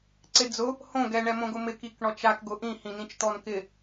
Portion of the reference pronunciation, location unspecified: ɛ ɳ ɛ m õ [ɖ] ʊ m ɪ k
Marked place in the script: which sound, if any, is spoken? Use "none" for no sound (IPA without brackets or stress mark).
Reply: ɡ